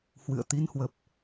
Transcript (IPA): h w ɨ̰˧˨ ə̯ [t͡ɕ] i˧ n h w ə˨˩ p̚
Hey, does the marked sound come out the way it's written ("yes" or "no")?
no